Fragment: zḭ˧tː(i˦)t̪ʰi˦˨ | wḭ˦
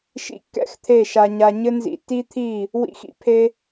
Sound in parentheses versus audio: correct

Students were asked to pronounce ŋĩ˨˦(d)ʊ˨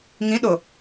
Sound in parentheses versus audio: incorrect: ɗ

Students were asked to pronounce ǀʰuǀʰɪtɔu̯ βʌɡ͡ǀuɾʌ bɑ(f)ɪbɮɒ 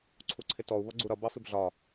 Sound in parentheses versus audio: correct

